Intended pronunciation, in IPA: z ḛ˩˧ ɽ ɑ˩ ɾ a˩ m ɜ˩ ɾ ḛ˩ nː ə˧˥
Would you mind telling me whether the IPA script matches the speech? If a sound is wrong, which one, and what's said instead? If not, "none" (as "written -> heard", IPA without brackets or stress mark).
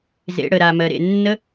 ɑ˩ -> ə˩